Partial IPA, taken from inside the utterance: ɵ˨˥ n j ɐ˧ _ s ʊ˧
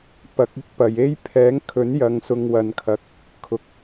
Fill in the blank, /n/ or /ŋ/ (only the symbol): ŋ